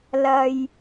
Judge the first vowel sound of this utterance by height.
low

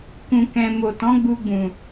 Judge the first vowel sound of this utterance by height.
high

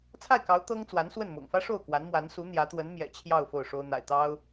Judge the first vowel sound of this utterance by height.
low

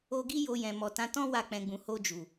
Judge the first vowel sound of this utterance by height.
mid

